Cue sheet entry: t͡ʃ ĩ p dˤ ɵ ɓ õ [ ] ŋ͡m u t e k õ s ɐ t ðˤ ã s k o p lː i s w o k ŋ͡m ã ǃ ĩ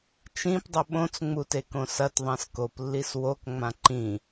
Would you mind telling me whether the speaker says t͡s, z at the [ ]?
t͡s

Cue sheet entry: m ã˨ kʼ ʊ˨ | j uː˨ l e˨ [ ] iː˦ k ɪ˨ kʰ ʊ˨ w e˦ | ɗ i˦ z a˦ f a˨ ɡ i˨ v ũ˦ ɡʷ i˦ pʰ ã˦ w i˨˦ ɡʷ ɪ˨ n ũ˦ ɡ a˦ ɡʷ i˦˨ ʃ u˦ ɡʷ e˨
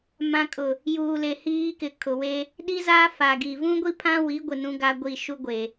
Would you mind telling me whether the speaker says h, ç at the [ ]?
h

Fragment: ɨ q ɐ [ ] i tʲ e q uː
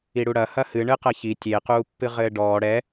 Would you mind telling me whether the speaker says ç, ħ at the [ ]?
ç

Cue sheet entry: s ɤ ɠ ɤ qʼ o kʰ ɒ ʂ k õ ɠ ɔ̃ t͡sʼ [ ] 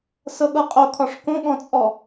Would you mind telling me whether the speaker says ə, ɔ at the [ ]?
ɔ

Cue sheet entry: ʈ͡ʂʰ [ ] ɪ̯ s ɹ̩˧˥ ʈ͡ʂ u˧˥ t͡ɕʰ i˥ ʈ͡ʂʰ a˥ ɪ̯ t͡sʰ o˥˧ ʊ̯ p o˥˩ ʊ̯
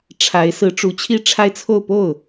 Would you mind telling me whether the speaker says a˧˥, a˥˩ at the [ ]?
a˧˥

